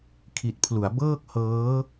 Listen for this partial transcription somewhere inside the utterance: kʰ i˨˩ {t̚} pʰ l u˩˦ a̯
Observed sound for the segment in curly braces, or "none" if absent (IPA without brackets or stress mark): t̚